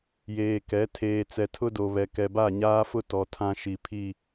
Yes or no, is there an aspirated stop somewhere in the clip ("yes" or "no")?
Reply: yes